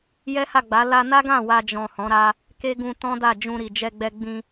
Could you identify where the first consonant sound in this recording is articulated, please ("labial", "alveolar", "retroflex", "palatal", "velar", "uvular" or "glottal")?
palatal